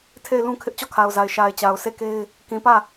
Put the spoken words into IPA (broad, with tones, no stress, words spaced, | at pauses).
tʰe˦˨ɪ̯lũ˦kʰɪ˦ʔ t͡ɕɔ˦˨kʰa˨ʊ̯za˨ɪ̯ ʃa˨ɪ̯ t͡ɕa˨ʊ̯se˦˨ke˦ɪ̯ | kĩ˨pä˦˨